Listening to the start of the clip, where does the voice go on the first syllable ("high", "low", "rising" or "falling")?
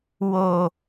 high